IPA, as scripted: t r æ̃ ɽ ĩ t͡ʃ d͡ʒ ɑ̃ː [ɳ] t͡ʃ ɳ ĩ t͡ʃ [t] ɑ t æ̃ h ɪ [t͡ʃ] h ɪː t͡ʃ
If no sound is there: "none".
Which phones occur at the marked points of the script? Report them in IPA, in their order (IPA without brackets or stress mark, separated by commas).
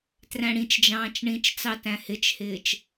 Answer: none, t͡s, t͡ʃ